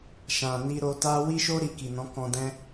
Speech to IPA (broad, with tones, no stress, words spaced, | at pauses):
ʃã˨ni˧ ɾo˧ta˦ wi˦ʃo˦ ɾi˧ki˨ nɔ̃˨˦kɔ̃˧dɛ̃˦